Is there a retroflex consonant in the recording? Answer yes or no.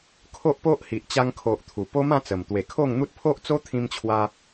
no